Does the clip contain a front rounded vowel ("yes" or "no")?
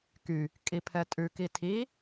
yes